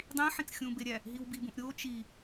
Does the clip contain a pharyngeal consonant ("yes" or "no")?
yes